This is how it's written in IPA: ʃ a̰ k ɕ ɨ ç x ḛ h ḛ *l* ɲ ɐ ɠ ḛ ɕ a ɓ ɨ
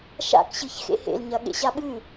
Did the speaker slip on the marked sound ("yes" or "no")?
no